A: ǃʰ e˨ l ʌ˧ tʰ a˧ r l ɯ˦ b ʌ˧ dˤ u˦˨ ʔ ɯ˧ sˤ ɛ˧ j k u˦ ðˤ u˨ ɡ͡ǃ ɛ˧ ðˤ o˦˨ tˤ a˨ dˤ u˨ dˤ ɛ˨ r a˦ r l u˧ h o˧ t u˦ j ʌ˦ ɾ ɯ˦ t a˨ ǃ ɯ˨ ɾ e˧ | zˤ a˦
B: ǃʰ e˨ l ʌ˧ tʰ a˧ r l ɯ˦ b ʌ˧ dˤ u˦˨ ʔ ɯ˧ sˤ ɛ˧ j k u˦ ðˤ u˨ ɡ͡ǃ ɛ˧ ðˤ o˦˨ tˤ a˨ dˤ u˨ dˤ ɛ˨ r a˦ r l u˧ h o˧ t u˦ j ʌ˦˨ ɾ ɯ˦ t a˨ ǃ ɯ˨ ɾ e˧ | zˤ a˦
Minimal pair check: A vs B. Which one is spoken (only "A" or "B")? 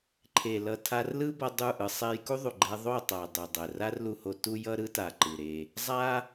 A